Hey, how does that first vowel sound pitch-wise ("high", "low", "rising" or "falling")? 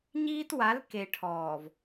high